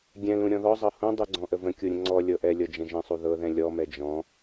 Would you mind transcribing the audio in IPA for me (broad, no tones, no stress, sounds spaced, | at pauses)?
ɡʲ ɛ̃ l ũ ɾʲ ɔ̃ ð ɔ zˤ ɤ h ũ dˤ u ɡ͡ǀ ɔ̃ ʔ ə v ə̃ kʲ u ɾʲ ə̃ ŋ͡ǀ ɔ lʲ ɤ ʔ ɛ lʲ ɤ d͡ʒ ə̃ ʒ ə̃ sˤ u ð ɤ ð ɛ̃ lʲ ɔ m ɛ d͡ʒ ɔ̃